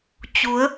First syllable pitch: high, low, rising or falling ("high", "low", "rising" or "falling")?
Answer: rising